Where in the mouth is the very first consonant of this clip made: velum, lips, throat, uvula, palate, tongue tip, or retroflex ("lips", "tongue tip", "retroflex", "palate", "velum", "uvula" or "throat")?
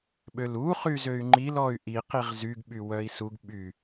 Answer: lips